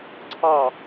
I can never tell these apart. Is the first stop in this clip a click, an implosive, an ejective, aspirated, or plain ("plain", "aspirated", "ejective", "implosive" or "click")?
click